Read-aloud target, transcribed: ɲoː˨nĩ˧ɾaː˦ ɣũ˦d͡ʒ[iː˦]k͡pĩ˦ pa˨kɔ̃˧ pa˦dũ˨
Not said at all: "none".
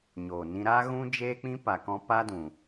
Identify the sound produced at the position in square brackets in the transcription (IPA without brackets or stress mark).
eː˦